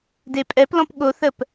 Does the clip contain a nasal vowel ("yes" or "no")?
yes